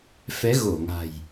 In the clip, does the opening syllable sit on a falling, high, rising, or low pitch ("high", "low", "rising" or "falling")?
rising